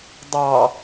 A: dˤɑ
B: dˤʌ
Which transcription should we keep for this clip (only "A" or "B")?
A